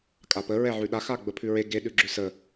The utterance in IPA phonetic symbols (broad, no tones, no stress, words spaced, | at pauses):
kʼapə ɹɛʕʉɗa xaɡ͡bəpʰʉɹe ɡe ɗʉɡ͡ǁʉsə